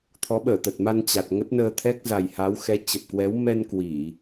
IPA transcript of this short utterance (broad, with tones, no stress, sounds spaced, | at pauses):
t̪ʰ ɔ˨˦ ɓ əː˧˩ t̪ ə˨˩ t̚ m a˧ n t͡ɕ a˨˩ t̚ ŋ ə˦˥ t̚ n əː˧ t̪ʰ ɛ˦˥ k̚ z a˨˩ j h a˨˦ w x ɛ˨˦ t͡ɕ ə˨˩ p̚ k w ɛ˨˦ w m ɛ˧ n k w i˧˩˨